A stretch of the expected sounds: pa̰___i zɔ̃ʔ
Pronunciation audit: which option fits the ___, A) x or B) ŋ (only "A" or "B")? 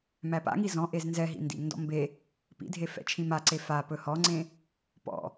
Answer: B